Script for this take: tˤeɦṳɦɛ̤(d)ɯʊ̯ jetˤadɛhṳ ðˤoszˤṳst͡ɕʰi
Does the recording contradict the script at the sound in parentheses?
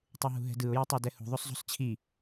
no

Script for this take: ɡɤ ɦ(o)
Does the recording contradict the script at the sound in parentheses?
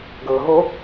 no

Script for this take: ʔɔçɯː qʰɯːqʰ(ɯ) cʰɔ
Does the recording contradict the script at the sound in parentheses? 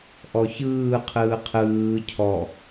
yes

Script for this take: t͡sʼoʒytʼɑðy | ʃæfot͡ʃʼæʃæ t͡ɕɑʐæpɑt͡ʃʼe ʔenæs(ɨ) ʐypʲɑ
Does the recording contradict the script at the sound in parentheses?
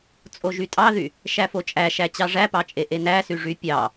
yes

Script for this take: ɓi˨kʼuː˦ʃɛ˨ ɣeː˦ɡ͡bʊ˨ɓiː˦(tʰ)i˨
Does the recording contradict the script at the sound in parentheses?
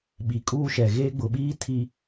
no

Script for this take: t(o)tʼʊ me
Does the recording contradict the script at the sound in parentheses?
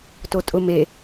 no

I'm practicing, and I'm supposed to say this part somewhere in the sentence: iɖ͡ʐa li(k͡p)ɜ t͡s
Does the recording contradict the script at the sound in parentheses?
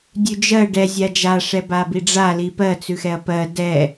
yes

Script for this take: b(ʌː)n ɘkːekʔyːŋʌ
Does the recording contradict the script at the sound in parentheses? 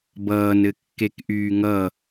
no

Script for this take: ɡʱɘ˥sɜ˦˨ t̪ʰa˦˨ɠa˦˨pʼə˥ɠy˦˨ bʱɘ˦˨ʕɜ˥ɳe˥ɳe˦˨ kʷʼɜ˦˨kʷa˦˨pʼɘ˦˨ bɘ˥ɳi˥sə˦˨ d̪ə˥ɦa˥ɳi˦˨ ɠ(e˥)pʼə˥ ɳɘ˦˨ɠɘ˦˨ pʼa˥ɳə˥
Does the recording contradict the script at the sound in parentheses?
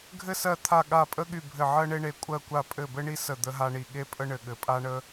no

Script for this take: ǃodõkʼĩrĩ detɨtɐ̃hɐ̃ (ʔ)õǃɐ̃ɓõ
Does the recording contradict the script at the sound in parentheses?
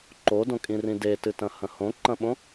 yes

